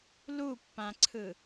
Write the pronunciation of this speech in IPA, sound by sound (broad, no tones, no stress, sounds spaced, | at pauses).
l u pː ã ǀʰ ɯ